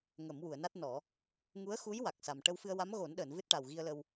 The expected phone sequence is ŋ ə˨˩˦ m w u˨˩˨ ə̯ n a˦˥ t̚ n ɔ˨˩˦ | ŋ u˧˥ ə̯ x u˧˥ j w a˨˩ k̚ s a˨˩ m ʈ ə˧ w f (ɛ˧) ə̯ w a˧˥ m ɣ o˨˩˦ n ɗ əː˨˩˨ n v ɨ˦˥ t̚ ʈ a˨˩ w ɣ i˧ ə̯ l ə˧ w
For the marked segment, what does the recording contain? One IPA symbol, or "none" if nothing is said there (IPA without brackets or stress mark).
ɨ˧